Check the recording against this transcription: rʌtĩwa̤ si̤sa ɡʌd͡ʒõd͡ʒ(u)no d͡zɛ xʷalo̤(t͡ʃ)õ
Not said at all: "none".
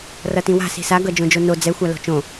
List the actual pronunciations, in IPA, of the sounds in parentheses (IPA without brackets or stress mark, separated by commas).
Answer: o, t͡ʃ